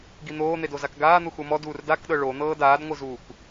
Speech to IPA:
ɡ i n̪ oː n̪ e d o z a k ɡ aː n̪ u x u m ɔ d uː r d a k ɗ ɤ ɭ o n̪ ɤː d aː d ŋʷ ɯ z uː k

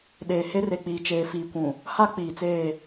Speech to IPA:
ɗ eː˨ h e˦ r e˨ k͡p iː˨ t͡ʃ eː˨ f iː˨ kʷ ũ˨ | h a˦ k͡p iː˨ t͡s eː˦˨

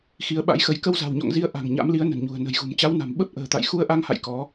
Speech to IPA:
x i˨˦ ə̯ ɓ a̰˧˥ j x ə˨˦ j k ə˧ w z a̤˨˩ w ɲ ɔ̰˧˨ ŋ z i˧ ə̯ ʔ a̤˨˩ ŋ ɲ a̰˧˥ m l i˨˦ ə̯ n ə̤˨˩ n ɲ ṳ˨˩ ə̯ n ə̤˨˩ j ɣ ṳ˨˩ m t͡ɕ a˨˦ w n a̤˨˩ m ɓ ə˦˥ p̚ ʔ ə̤ː˨˩ t̪ a̰˧˨ j x u˧ ə̯ ʔ a˧ ŋ h a̰˧˨ j k ɔ˨˦

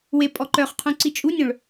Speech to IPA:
w e pʼ ɔ ǃ œ χ qʰ ũ ǀ i t͡ʃʼ u nʲ œ̃ ɭ

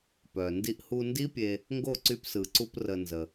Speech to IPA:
p œ˨ n d i˧ ʔ h u˧ n d i˦ pʲ e˧ | ŋ ɡ o˦˨ ǀ y˧ p s ɯ˨ ǀ u˧ p r ə˧ n z ə˧

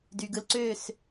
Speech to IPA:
d y˨ ɡ ɯ˧ l ǀ ø˦˨ s

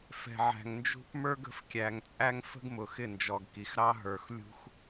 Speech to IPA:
f ɛ̤˨ ʕ æ̤˨ ŋ n d͡ʒ ṳ˦ p m ə˞˦ ɡ ə̤˨ f kʲ æ˨ ŋ t͡sʼ æ˦ ŋ f ə̤˦ ɡ m ʊ˨ x ɪ˦˨ n d͡ʒ ɔ˨ ɡ k i˨ x ɾ ɑ˦ ɦ ə˞˨ x lʲ ṳ˦ x

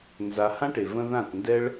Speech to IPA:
n z a˧ h ã˦ ʈ e˨ v ə̃˦ ð ã˦˨ t n d ɛ˦ ɭ

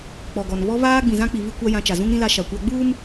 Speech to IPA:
k͡p ɔ˨ ɡ ɔ˨ n β ɔ˦ β aː˦ ɡ͡b ĩ˨ z ã˦ k͡p i˨ β i˦ kʷ a˦ j ã˦ t͡ʃ a˨ z ũ˦ ŋ ɾ ĩ˦ l a˦ ʃ a˨ kʷ a˦ ɡ͡b uː˦ m

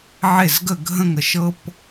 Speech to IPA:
ʕ e˥˨ z ɡ ə˥˨ ɡʱ ə̃˥ ŋ ə˨˥ ʃ ɤ˥ p

